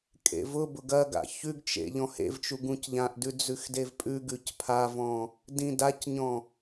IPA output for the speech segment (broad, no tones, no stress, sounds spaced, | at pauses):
kʼ ḛ v ʊ b ʊ ɡ ɐ ɡ a̰ ç ʉ ɡ t͡ʃ ḛ ʎ ɔ̃ h ḛ v t͡ʃ u ɡ ũ c ʎ ã ʔ d ʉ d͡z ʉ x d e v pʼ ʉ ɡ ʉ c pʰ a v ɔ̃ | d ĩ d a c ɲ ɔ̃